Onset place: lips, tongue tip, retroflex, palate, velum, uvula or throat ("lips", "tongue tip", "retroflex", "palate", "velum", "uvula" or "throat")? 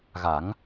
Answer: velum